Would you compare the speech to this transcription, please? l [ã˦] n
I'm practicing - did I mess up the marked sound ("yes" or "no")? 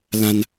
no